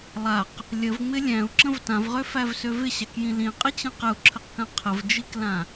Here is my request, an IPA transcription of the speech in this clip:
lˠ a q | lʲ ə v ŋ͡m ɪ lʲ æ̃ u̯ ǁ ə̃ v t ã v ʁ ø f æ v s ø v ɪ ɕ æ k j ĩ l ĩ qʼ ɪ t͡ɕ ə̃ q ə u̯ ǁʰ ə q k ã qʰ ə v d͡ʒ i k l ã

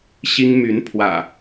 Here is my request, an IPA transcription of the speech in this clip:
ɕ i˦ ŋ m y˨˦ n pʰ w ä̰˨˩

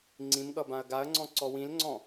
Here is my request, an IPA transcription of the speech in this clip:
ŋ͡ǀ ĩ m ɠ ʌ b ã ɐ̯ ɡ a ɐ̯ ŋ͡ǀ ɔ̃ ǀ ɔ w ĩ l ŋ͡ǀ ɔ̃

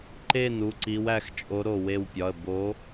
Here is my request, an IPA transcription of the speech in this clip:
ǃ e˧˩ n u˩˧˩ ǀ i˨˦ w æ˨˦ x t͡ʃʼ o˨˦ ɾ o˧˩ w e˧˩ w pʲ ɒ˩˧˩ ə̯ b o˨˦

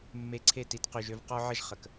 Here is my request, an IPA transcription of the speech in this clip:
mː e˧ ǀʰ e˦˨ t i˧ t q y˨ ʒ ø˧ v q ɔ˦ ʕ ə˦ ʒ χ ə˨ k

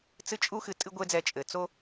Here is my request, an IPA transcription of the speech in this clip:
t͡s ɨ˧ t͡ʃʼ u˧ x ɨ˨ tʼ ɨ˦ ɡʷ e˦ d͡z ɛ˧ t͡ʃʼ ɘ˨ t͡s o˦

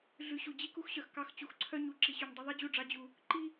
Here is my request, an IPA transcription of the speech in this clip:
ɮ ʉ˨ ɕ u˨ d͡ʑ i˦ k u˦ x ɕ œ˨ x k ɑ˦ x t͡ɕ u˨ x ǀʰ œ˦ ɲ u˨ ǁ i˨ ɕ y˨ ɲ dˤ ʉ˦ ðˤ i˦ d͡ʑ u˦˨ ɖ͡ʐ ɑ˦ d͡ʑ u˦ | ǃ i˦

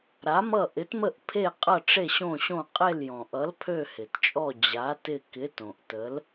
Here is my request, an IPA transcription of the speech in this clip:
ɾ a˨˥ m ʌ˦˨ ʔ ɪ˨˥ t m ə˦˨ ʔ pʰ e˦˨ qʼ ʌ˦˨ ʈ͡ʂ e˦˨ ɕ õ˦˨ ɕ õ˦˨ qʼ e˦˨ l j ɔ̃˩ ʔ ʌ˨˥ l pʰ ø˦˨ h ɪ˩ t t͡ʃʼ ɔ˦˨ d͡ʑ a˨˥ t ɪ˦˨ k ɪ˨˥ t õ˩ ʔ t ə˨˥ l

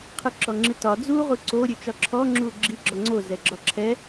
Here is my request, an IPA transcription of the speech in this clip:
qʰ ɨ ǁ ɔ ŋ͡ǁ ɨ t ɒ d͡z u ʁ u ǀ o ɾʲ ø t͡ʃ ɒ ǁʰ ɔ ŋ͡ǁ u ɡ͡ǁ i ɡ͡ǁ ɔ ŋ͡ǀ o z ɛ ɡ͡ǁ ɒ ǁʰ ɛ

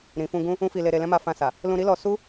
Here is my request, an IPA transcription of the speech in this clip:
ɾ ĩ˨ f ũ˧ ɡ ũ˦ | ũ˦ f i˧ l e˧ ɾ e˧ l ɛ̃˦ m a˧ f ã˧ s a˨ | l ũ˧ ɾ i˦ l ɔ˧ s u˦

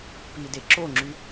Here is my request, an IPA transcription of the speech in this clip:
p i d e ǁ o ŋ͡ǁ y

